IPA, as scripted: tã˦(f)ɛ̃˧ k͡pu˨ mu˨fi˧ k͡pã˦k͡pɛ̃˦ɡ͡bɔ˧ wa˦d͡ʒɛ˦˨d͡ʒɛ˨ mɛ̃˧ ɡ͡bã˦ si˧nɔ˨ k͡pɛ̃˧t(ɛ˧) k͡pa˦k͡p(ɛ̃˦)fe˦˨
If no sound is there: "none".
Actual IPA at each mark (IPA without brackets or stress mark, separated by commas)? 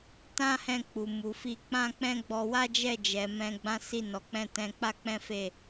h, ɛ̃˧, ɛ̃˦